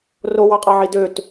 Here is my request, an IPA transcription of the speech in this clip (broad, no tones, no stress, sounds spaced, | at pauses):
r o w ɑ qʼ ɑ ʕ i d ø t